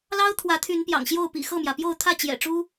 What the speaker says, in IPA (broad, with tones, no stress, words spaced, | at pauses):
lɑ˦ʊ̯t̪ʰwä˨˦t̪ʰy˨˦n pjɑ̰˨˩ŋɕjo˥˨ʊ̯pḭ˨˩ xɤ˥˨mjä˩pjo˥˨ʊ̯ t̪ʰä˥˨t͡ɕjɛ̰˨˩ʈ͡ʂu˦